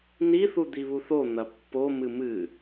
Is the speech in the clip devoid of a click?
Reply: yes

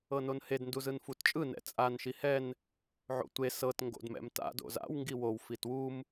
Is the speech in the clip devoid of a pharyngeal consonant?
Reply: no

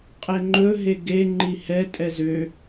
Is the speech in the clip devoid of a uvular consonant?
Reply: no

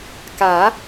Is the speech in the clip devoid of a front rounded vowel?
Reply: yes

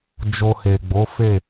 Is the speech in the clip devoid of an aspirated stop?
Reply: yes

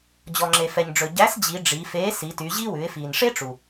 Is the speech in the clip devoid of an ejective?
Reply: yes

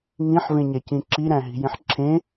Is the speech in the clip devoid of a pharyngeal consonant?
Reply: no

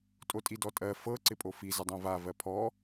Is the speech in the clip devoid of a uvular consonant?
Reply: yes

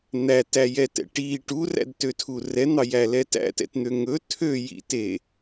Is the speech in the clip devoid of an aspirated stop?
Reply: no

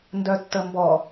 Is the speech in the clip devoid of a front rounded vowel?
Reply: no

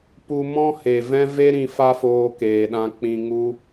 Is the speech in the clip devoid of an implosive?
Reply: no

